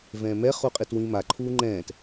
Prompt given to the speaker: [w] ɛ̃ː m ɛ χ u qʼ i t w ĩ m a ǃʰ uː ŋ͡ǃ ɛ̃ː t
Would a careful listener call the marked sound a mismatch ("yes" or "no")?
yes